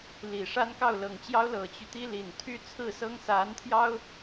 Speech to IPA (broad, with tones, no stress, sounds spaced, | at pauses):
l i˨˩ ʂ a˥ n k ɑ˥˩ ʊ̯ l ɤ˨˩ ŋ t͡ɕ j ɑ˥ ʊ̯ l ɤ˨˩ t͡ɕ y˦ t̪ i˥ l i˨˩ n t̪ʰ y˥˧ t͡sʰ ɹ̩˥˩ s ɤ˥ ŋ s a˧˥ n t̪ʰ j ɑ˥ ʊ̯